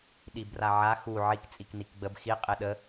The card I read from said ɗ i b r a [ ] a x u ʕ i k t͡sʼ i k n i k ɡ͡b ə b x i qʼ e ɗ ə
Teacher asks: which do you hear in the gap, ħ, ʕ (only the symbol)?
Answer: ʕ